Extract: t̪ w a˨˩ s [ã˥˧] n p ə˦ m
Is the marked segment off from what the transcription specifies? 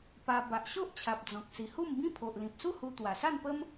yes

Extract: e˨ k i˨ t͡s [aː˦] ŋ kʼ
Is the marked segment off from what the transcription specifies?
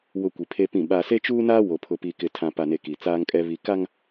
no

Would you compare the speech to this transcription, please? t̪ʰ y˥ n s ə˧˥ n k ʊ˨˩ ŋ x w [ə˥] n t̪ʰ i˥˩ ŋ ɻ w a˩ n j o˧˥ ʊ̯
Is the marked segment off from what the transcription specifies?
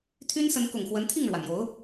yes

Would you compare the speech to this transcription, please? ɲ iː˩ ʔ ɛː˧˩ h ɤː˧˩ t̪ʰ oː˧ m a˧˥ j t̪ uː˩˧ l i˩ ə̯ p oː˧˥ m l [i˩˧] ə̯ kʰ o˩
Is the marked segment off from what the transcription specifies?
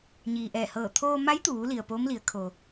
no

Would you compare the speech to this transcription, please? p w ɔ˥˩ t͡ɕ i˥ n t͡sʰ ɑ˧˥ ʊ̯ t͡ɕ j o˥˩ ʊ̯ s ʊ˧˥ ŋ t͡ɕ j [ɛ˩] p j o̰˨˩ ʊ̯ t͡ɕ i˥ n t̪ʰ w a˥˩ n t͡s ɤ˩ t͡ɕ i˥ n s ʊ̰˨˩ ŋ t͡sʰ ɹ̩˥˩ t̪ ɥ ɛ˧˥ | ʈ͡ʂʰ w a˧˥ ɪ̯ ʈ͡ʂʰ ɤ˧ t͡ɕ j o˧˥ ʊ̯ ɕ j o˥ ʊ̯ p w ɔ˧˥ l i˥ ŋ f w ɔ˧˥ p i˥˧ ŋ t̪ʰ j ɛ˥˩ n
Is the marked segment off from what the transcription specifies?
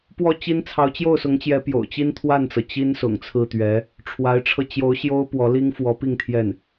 yes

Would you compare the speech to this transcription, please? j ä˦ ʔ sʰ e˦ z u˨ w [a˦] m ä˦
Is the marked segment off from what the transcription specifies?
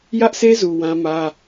yes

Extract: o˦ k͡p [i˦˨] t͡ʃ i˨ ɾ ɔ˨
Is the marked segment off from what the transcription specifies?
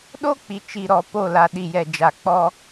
yes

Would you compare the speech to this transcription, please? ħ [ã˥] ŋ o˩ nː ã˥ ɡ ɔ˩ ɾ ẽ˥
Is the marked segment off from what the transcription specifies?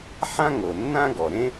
no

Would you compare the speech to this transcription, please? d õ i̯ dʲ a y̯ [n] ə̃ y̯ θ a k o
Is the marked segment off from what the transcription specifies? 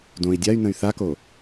no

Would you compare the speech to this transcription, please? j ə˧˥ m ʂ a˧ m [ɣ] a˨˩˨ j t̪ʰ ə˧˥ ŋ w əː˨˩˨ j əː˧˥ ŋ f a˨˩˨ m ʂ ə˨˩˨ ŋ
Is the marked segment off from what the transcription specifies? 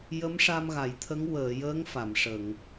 no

